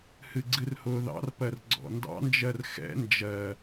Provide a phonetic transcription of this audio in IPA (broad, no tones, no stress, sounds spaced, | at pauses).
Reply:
h ɨ ɡ͡ǀ ɨ r h ʊː ð ɑ̰ r p ɜ r ɡ͡ǀ ɔ̰ n d ɑ̰ n d͡ʒ ɜ r x ɛ̰ n d͡ʒ ɜ